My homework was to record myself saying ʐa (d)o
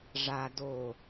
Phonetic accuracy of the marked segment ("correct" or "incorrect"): correct